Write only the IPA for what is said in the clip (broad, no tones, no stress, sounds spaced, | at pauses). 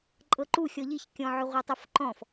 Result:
ǃʼ ɤ ǃ u xʲ ɔ ʎ i ç kʲ ɔ̃ ʕ ʏ ʁʷ ɤ tˤ ʏ f ǃ ɔ̃ f